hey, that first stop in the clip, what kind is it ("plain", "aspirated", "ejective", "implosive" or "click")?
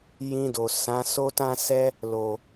plain